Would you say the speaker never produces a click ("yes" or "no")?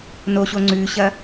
no